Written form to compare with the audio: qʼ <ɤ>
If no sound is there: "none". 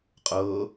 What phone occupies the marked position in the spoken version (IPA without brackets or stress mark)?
ɤː